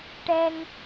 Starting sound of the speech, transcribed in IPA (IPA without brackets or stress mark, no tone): ʈ